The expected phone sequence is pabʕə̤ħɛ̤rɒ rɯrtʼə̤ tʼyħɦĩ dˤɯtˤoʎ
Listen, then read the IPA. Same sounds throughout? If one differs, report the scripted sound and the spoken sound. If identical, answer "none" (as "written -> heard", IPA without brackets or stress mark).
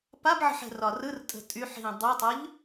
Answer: none